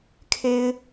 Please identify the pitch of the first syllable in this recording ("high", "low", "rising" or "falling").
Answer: low